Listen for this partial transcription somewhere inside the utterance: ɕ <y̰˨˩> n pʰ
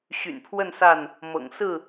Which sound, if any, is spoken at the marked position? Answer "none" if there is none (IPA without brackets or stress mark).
y̰˨˩